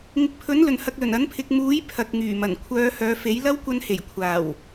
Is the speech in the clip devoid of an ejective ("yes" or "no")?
yes